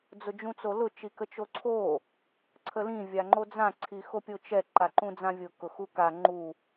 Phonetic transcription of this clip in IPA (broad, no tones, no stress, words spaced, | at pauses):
d͡zʊd͡ʒũt͡solʊ t͡ʃikət͡ʃoǀʰo | ǀʰəlĩ vʲaŋ͡ǃod͡zã ǀʰixopʲot͡ʃɛ ǃaǃũd͡zãvʲʊ kʊxuka ŋ͡ǃu